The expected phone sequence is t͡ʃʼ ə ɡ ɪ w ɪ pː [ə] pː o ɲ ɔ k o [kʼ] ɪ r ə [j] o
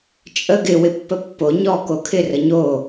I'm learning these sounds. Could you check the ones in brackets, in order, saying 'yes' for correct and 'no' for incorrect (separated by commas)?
yes, no, no